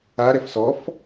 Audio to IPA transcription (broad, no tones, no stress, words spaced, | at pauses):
a ɾɛfsɔf